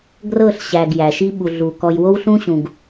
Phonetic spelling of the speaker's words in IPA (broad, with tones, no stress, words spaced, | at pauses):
ɡrɤ˦˨ɬ ɕæ˨ɡ jæ˨ʃi˦ ɓu˨ ɮu˨ kɔ˨jwo˦wɬũ˦ɕũ˨ɡ